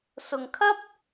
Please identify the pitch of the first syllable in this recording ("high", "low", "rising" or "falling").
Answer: low